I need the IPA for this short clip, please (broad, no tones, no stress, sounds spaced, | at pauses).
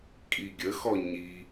kʼ i ɡʲ ə x ɔ ɲ i